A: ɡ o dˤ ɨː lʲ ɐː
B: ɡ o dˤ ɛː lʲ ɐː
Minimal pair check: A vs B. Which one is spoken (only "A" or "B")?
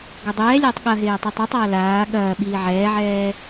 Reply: B